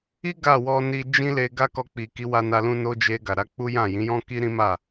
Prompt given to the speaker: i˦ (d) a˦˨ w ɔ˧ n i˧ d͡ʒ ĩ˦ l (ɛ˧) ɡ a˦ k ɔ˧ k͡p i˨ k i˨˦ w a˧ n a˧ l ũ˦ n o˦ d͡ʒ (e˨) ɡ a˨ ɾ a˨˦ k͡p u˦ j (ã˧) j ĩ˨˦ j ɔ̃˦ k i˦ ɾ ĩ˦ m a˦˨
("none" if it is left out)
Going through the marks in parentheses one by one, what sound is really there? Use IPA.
ɡ, e˧, e˧, ã˦˨

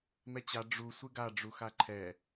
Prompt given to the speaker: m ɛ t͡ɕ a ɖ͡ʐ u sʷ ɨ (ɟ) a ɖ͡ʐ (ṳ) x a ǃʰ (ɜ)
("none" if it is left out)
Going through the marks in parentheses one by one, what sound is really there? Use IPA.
ɡ, u, ɛ

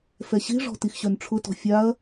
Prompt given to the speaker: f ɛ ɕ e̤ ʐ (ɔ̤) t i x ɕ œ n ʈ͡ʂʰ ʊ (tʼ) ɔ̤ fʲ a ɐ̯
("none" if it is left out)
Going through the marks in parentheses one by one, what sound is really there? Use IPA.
ɔ̤, t

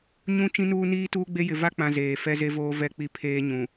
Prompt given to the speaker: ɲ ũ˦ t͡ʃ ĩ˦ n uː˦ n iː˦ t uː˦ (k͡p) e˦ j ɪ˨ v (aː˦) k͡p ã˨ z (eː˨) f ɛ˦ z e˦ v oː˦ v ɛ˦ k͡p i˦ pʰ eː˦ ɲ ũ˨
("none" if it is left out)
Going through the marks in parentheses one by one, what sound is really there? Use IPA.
ɡ͡b, a˦, eː˨

